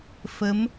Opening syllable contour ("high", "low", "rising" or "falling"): rising